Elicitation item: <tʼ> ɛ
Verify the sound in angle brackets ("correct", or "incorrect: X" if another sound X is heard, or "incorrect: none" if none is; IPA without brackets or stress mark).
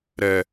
incorrect: ɾ